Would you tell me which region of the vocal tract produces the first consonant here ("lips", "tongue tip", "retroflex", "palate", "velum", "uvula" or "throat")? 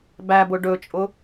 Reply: lips